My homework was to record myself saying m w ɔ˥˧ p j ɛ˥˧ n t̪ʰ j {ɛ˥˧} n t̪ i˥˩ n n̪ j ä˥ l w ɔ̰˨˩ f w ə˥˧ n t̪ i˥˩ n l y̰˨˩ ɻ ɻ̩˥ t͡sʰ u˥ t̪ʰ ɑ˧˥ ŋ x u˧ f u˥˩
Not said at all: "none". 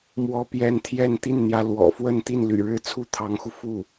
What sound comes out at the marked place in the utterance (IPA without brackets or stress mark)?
ɛ˥˧